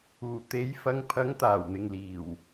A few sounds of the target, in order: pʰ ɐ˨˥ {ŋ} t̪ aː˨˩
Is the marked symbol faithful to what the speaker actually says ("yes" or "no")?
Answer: yes